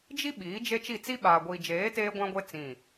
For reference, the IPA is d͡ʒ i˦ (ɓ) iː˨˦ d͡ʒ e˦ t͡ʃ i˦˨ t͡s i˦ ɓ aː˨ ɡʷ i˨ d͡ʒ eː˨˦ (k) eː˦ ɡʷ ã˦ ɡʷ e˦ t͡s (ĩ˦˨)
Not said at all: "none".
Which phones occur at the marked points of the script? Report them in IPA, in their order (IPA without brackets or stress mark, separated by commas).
ɓ, t, ĩ˦˨